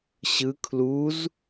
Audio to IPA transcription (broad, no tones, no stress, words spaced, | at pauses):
ɕɯ kʰluz